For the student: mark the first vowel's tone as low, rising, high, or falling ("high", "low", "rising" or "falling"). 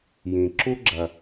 low